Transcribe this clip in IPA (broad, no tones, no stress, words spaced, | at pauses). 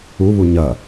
u βuɲɐ